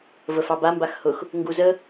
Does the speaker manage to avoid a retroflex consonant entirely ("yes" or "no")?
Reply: yes